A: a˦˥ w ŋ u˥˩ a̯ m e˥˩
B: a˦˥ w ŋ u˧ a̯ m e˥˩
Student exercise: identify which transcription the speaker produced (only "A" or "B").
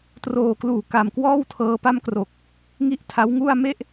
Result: A